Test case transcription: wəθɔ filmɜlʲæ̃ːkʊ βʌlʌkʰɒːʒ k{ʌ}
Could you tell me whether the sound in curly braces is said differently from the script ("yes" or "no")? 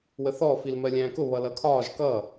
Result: no